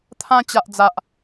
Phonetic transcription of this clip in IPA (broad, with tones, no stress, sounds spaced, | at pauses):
t̪ʰ ã˧ t͡ɕ a˨ ʔ d͡z a˨ ʔ